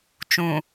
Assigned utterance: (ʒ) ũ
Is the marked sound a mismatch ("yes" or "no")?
yes